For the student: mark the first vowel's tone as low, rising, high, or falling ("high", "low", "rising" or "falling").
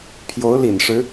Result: rising